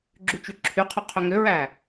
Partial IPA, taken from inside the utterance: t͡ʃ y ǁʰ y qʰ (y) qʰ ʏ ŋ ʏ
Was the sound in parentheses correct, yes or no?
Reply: no